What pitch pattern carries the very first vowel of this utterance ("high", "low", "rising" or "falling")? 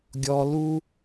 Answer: high